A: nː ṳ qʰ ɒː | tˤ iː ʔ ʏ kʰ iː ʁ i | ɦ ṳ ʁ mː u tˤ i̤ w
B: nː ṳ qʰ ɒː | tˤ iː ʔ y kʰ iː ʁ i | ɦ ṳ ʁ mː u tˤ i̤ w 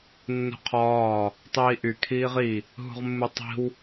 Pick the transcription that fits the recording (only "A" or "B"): B